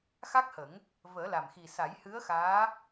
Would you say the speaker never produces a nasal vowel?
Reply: yes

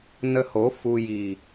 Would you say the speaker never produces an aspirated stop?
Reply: yes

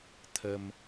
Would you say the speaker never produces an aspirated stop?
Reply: no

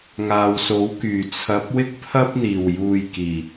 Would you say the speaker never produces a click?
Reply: yes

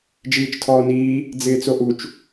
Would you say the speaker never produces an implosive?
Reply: yes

